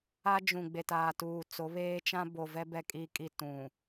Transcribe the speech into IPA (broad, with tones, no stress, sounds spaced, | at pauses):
a˦ d͡ʒ ũ˨ ɡ͡b e˨ t aː˨ t uː˨ t͡s o˨˦ β eː˦ t͡ʃ ã˦ b o˨ v ɛ˦ b ɛ˦ kʼ i˦ kʼ i˦ t ũ˨